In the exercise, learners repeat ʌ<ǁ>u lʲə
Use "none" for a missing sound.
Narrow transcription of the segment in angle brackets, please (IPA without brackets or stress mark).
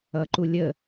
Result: ǃ